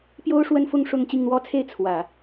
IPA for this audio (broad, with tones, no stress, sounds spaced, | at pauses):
p j o˥ ʊ̯ ʂ w ə˥ n f ʊ˥˧ ŋ ʂ ʊ˥˧ ŋ t͡ɕ i˥˩ ŋ n̪ w ɔ˥ t͡sʰ e˥ ɪ̯ t͡sʰ w ä˨˩˦